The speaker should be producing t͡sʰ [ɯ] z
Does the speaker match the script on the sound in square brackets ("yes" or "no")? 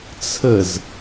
no